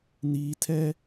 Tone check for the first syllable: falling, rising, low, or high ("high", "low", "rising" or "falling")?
low